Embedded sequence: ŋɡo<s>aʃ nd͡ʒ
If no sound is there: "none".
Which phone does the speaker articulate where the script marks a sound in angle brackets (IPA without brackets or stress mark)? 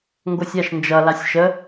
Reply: sʲ